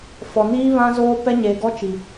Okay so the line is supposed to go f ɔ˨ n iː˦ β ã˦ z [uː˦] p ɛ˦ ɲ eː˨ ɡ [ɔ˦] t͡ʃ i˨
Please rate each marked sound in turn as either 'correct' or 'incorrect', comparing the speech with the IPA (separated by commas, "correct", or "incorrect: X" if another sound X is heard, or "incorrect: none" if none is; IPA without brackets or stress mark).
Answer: incorrect: oː˦, correct